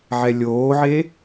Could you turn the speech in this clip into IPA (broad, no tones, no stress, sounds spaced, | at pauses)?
ʕ ɛ lʲ oː ʕ e